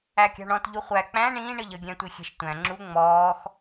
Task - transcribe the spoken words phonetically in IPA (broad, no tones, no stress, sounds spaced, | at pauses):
æ kʲ ɑ̤ ɳ ɔ̃ t ʎ u χʷ æ k͡p æ̃ ɳ ĩː ɳ əː ʎ ʌ ɡʲ æ̃ tʷ i xʲ ɛ̤ ʃ tʷ æ̃ ŋ͡ǁ u ŋ͡m ɔː x